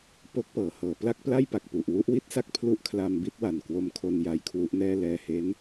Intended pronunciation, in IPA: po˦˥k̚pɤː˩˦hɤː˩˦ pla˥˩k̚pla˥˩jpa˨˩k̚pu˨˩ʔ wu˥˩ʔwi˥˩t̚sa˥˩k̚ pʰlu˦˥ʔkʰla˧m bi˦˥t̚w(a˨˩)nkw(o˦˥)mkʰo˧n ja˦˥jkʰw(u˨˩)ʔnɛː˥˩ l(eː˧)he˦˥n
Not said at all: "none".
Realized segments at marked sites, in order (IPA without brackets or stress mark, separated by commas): a˨˩, o˦˥, u˦˥, ɛː˧